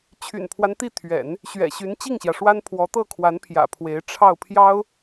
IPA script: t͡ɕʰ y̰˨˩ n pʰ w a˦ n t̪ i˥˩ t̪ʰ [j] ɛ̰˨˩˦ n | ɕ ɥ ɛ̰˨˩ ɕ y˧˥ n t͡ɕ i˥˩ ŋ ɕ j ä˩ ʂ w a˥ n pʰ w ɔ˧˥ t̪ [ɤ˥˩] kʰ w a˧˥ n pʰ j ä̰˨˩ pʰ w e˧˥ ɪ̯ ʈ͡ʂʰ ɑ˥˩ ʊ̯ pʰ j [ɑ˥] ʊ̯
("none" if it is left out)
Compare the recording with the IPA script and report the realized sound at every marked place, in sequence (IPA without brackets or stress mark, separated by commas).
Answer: ɥ, ɤ˥˩, ɑ˥